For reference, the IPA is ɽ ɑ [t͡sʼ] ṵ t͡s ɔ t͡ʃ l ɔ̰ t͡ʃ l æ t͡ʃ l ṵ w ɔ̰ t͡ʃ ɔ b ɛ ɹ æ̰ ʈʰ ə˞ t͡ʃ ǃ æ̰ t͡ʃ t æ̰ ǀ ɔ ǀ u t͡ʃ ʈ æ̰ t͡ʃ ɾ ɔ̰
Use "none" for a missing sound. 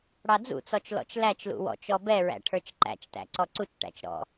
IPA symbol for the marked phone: d͡z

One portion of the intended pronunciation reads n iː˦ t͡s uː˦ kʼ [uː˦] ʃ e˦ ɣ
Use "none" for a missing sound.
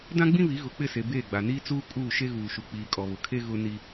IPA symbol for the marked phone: uː˦˨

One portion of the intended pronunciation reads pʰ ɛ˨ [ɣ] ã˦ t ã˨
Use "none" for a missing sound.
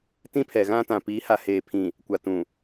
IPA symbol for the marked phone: ɣ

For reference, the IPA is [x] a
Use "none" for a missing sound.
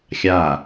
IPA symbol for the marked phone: xʲ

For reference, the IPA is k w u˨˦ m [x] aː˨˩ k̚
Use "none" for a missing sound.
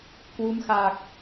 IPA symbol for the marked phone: x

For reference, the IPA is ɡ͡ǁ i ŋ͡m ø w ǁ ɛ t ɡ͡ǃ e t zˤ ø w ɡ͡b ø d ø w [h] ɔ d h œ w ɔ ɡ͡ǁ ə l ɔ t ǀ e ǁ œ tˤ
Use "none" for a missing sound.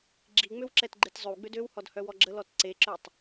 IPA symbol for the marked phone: h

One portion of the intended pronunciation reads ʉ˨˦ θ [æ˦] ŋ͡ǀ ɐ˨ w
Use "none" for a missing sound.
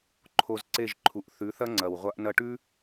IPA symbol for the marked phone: ɐ˦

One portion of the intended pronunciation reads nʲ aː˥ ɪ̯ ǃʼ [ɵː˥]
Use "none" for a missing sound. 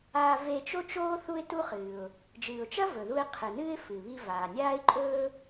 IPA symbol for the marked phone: ɵː˥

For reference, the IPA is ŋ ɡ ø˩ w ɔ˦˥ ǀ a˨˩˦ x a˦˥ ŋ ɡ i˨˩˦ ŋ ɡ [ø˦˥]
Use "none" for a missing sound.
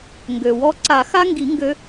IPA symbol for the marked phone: ø˦˥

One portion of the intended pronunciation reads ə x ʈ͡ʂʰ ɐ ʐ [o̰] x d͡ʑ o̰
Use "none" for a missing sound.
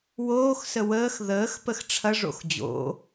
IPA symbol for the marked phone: o̰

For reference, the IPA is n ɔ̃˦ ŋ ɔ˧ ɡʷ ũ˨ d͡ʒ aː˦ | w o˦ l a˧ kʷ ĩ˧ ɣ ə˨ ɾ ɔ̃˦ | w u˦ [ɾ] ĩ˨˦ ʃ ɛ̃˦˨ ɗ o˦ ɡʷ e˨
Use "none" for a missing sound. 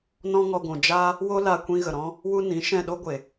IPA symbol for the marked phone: n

